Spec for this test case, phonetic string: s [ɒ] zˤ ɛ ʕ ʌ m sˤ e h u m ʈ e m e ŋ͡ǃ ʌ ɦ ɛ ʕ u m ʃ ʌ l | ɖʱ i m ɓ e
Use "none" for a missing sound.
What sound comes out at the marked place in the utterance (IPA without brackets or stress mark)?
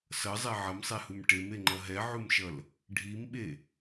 ʌ